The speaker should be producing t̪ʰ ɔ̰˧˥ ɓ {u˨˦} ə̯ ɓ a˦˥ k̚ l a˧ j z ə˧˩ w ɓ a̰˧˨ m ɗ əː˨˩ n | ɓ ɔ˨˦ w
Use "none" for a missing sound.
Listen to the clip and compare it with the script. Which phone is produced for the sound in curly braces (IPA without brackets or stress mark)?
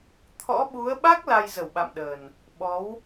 u˨˦